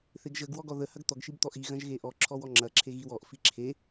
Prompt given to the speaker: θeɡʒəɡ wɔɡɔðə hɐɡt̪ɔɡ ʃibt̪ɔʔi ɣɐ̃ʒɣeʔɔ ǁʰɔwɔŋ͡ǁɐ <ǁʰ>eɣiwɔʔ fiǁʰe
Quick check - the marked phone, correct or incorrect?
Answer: correct